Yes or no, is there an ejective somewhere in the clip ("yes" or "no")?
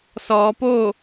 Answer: no